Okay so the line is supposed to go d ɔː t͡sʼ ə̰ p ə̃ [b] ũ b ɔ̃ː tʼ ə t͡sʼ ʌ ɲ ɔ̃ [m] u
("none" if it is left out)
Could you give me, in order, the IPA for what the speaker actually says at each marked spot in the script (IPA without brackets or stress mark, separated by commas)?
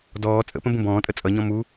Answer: b, m